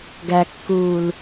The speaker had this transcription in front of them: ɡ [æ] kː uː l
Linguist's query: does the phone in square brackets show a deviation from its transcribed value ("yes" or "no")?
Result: no